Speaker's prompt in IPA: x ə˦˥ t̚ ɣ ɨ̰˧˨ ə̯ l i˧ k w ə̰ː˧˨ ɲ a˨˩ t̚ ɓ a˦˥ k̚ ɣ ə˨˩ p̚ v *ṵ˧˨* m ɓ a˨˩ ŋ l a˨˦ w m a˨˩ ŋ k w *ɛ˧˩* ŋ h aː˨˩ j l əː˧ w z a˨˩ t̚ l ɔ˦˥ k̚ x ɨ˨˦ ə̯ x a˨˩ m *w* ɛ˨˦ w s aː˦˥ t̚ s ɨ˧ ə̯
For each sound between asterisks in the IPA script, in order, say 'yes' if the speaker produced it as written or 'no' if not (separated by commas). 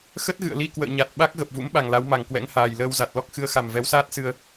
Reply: no, no, no